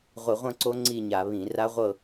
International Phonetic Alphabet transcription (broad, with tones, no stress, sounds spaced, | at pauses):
ʁʷ i˧˩˧ ʁʷ ɐ̃˥˧ ǀ o˦˥ ŋ͡ǀ i˥˧ ɲ a˧˩˧ β ĩ˧˩˧ r a˦˥ ʁʷ ɤ˥˧